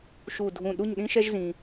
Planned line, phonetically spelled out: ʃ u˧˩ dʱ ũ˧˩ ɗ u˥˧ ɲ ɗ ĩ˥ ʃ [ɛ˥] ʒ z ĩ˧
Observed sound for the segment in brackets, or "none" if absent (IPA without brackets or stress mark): ɛ˥